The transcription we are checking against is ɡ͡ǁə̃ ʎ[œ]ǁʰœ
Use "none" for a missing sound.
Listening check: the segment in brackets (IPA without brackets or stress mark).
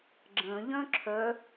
œ̃